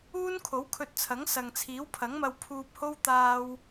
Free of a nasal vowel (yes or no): yes